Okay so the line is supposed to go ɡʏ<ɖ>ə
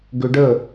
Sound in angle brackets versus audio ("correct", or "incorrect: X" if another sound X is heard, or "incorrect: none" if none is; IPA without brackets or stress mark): correct